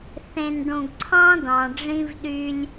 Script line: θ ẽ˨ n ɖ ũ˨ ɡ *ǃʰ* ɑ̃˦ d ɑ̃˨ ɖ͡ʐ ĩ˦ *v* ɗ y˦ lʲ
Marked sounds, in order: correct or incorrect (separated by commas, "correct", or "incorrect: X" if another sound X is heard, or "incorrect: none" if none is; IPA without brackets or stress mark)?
incorrect: ǀʰ, correct